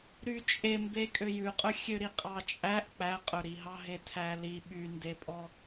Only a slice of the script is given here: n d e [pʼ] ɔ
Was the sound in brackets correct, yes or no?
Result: yes